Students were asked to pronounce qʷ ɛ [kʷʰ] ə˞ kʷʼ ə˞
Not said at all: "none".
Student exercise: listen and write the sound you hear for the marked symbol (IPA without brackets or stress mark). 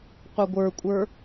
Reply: ɡʷ